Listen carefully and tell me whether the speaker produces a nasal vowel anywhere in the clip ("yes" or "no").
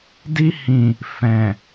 yes